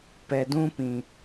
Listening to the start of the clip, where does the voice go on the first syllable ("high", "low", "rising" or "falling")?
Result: low